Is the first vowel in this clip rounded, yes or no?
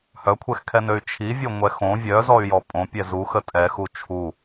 yes